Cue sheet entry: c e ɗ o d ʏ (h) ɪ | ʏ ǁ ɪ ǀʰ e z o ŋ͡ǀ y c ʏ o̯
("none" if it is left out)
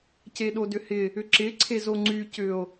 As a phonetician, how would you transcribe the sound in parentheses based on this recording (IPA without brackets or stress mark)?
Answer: h